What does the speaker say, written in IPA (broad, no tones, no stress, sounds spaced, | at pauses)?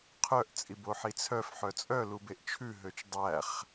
qʰ œ ʔ t͡sʼ i b o ħ i t͡sʰ œ f ħ œ t͡sʼ œ l u b e ʔ t͡ʃʰ ʉ ɦ ø t͡ʃ dˤ æ χ